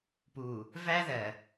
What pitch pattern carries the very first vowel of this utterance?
low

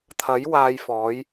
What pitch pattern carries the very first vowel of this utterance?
rising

